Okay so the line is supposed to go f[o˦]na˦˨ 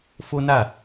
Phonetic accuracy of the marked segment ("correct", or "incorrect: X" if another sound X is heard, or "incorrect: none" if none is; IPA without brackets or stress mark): correct